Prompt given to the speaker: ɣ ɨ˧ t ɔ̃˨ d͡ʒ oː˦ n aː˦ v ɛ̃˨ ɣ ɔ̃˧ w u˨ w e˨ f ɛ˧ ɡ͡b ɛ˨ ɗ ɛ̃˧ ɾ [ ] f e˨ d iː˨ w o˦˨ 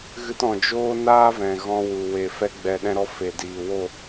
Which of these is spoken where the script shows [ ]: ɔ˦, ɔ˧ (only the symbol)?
ɔ˧